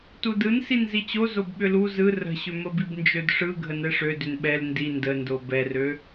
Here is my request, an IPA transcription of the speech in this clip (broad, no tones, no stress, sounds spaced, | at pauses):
t u d ɯ n s i n z i t͡ɕ o z o b ɓ ʏ l u z ɯ r ə̤ ɕ ʏ m ə b i b n d͡ʒ ø d ʂ ɯ ɡʱ ə n ɛ ʂ ø d ʏ n ɓ ɛ l n d i n d ə n d o b ɛ r ø